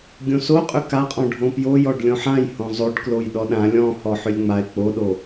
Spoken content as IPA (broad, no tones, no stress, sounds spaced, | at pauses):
ɡʲ õ s o qʼ ʏ k a qʼ ɔ̃ ɖʱ õ p j o j ɔ ɖ lʲ õ ħ ã j h õ zˤ o ɖ k l o j ɗ ɔ ɗ ã lʲ ɔ̃ h ɔ ħ ʏ lʲ ŋ͡m a ɪ̯ k͡p o ɗ o